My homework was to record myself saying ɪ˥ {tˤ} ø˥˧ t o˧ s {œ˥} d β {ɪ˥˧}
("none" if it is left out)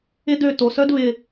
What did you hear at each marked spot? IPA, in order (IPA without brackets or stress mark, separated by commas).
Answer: d, œ˥, ɪ˧